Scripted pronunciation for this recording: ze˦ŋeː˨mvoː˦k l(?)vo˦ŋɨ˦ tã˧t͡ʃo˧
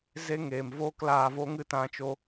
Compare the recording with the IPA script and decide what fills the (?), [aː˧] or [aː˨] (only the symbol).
aː˧